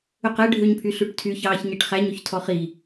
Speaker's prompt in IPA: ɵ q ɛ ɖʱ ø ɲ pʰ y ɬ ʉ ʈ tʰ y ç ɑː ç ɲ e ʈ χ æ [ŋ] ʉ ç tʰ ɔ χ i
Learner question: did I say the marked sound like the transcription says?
no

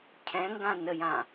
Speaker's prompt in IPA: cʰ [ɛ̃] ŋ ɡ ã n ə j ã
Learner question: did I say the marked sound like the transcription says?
yes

